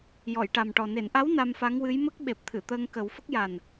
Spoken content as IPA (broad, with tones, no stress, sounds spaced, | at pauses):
j ɔ˨˩˨ j ʈ a˨˩ m ʈ ɔ˨˩ n e˨˩˨ n ʔ a˧˥ w n a˧ m f a˧˥ ŋ w ɨ˧˥ j m ə˦˥ k̚ ɓ e˨˩ p̚ t̪ʰ ɨ˨˩˨ t̪ əː˧ ŋ k ə˨˩˦ w f ə˦˥ k̚ j a˨˩ n